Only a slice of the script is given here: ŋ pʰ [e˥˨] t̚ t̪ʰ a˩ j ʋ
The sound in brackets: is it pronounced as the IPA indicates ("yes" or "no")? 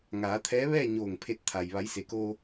no